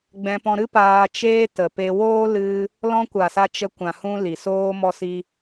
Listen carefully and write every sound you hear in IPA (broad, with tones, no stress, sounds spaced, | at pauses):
ɡ͡b ɛ̃˧ p ɔ̃˧ ɾ ɨ˦ p aː˧ t͡ʃ eː˦ t ə˨ p e˧ w oː˦ l ɨ˧ | l ɔ̃˧ kʷ a˨ s a˦ t͡ʃ ə˧ kʷ ã˨ h ũ˧ l i˨ s oː˦ m ɔ˧ s i˧